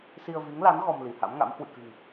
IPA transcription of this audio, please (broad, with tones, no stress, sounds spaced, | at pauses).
s i˧ ə̯ v i˨˦ ŋ l a˨˦ n ɣ ɔ˧ m l i˧˩ h a̰˧˥ m ŋ a̰˧˥ m h w ɨ̰˧˨ k ɨ̤˨˩ ŋ